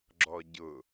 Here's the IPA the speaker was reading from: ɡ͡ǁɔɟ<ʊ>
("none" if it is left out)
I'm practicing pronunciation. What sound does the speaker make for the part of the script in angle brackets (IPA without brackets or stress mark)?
ʊ